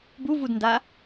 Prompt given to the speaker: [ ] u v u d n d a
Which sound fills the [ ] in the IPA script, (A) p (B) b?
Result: B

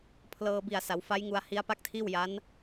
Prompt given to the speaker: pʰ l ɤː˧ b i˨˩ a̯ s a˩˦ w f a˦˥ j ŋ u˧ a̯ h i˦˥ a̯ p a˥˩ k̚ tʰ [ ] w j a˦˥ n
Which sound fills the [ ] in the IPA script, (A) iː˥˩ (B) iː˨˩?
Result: A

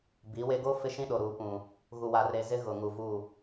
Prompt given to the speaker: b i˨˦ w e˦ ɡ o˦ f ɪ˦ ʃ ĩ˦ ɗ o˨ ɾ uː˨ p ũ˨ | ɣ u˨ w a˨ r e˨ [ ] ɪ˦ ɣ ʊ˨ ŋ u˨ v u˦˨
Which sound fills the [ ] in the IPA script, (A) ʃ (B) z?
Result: B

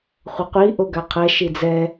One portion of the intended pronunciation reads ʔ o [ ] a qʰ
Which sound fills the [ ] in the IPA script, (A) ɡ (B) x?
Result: A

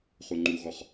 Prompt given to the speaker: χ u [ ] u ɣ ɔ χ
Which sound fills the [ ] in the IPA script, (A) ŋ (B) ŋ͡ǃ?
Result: B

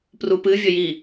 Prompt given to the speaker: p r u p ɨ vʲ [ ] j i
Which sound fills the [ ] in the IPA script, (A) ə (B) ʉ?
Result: A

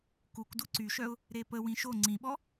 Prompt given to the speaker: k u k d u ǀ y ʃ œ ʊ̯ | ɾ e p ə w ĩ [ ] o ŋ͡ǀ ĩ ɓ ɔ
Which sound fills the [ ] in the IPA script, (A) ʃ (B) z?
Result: A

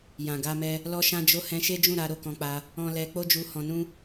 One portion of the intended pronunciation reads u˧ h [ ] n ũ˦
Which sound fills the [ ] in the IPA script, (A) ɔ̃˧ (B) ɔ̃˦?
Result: A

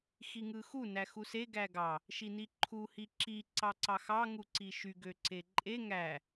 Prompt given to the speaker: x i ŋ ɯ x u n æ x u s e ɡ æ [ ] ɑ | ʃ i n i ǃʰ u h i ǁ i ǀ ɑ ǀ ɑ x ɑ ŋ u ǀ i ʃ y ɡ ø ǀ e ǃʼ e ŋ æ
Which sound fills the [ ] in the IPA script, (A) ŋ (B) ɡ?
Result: B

